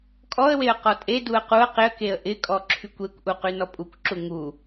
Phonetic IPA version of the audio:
kʼɔə̯weə̯ qɔtʼeduə̯ quə̯ qɪə̯keə̯ ʔɪkʼɔ ǁʰykʷekʷʔu qynɔpʼukʷǁu ŋu

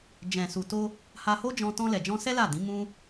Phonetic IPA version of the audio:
d͡ʒɛ̃˨su˨to˧ | ha˧ho˦d͡ʒɔ̃˧ tɔ̃˧lɛ˨d͡ʒɔ̃˧sɛ˦ la˦˨ dĩ˨˦mũ˦

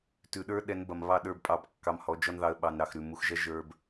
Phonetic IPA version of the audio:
tʉ˨ɗə˞˦ ɗɛ˨˦nbɐ˨mβɑ˦˨ ɗə˞˦˨bpʼɑ˧b kːɑ˧mhɔ˨˦d͡ʒɔ˦nðɑ˧ə̯ ɓɑ˨nɾɑ˨x ɾʉ˨mu˨˦x ʒɐ˦ ʒə˞˦b

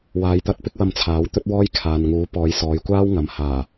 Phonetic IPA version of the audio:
waː˨˧jt̪ɐ˧t̚ pɪ˥k̚wɐ˧mt͡sʰaː˨˥w t̪ɵ˥t̚wɔː˥j kʰaː˨nŋuː˨˥ pɔː˨˧jsɔː˨˧jkʷaː˥wŋɐ˨m haː˨˩

